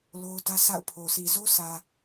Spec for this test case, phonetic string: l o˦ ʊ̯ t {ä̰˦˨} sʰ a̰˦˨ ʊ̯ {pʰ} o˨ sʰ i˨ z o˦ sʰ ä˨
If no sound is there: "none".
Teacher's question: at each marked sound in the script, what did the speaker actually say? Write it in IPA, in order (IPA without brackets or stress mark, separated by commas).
ä˦, pʰ